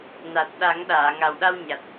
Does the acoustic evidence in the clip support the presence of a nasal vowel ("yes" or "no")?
no